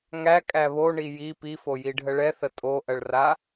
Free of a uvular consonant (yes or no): yes